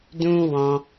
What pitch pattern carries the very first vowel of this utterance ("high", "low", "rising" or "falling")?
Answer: high